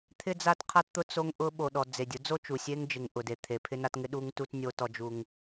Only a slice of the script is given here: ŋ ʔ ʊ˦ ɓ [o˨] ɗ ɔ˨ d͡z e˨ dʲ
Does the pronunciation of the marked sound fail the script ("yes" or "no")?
no